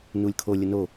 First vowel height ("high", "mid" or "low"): high